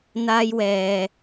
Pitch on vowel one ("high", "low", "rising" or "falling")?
high